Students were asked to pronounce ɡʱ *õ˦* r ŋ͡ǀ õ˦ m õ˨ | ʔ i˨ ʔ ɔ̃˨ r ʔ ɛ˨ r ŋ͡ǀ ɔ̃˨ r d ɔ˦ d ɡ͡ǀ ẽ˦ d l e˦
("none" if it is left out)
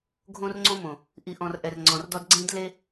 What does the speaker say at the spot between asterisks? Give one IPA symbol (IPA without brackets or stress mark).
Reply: õ˦